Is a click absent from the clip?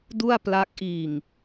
yes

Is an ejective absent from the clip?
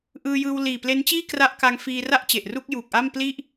yes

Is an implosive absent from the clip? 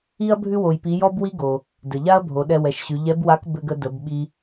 no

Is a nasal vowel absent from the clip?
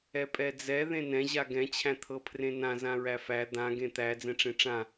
no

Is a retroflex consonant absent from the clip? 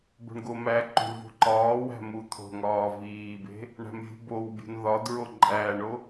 no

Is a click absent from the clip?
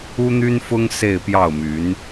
yes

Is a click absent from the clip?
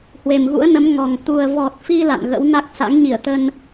yes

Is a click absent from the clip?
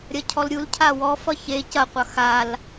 yes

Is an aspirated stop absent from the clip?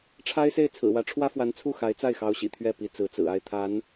no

